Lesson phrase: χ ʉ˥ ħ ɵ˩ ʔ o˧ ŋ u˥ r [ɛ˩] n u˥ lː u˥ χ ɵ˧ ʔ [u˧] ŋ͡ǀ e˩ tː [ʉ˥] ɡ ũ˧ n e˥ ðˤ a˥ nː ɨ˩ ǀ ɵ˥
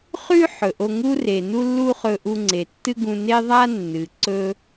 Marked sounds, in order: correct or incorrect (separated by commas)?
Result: incorrect, correct, incorrect